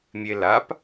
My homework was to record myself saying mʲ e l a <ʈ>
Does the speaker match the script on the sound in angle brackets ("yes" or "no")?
no